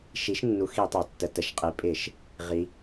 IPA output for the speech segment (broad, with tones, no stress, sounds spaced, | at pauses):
ʃ i˩˥ ʃ nː u˩˥ x i˧˩˧ tˤ a˩˧ tː ə˩˧ t ə˩˧ ʃ qʼ i˩˥ pʼ ɪ˧˩˧ ʃ | ʁ i˩˧